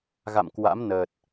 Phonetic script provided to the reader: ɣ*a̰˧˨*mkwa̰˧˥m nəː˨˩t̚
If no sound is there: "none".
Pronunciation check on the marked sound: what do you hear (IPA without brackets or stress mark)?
a̰˧˨